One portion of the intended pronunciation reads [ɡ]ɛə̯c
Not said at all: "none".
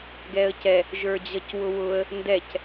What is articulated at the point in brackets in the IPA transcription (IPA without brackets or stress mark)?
ɡ